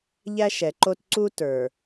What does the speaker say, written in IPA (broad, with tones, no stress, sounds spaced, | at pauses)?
ʎ æ˦ ʃ ɛ˨ ǃ o˦ t ǀ u˦ t ə˞˨